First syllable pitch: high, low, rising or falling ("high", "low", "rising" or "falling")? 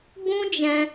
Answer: high